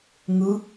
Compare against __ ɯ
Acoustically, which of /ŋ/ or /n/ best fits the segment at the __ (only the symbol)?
ŋ